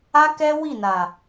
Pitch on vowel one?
high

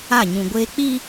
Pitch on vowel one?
falling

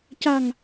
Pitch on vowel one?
low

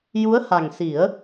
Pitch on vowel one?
rising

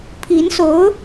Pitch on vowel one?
rising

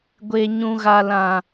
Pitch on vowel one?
low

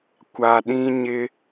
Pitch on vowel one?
low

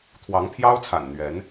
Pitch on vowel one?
rising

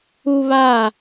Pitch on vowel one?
high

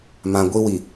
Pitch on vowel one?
low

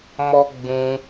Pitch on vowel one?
high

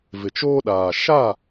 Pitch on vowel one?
low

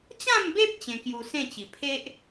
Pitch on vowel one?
falling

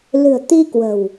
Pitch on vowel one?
low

